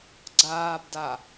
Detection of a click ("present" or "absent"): present